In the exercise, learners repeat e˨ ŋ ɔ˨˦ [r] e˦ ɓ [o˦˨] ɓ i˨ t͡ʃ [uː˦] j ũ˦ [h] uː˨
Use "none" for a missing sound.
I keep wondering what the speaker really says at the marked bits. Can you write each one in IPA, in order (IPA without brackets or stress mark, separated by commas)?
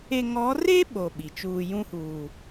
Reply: r, o˦˨, uː˨, h